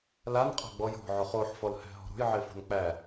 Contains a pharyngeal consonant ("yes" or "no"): yes